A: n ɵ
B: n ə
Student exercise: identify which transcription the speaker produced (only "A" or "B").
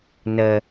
B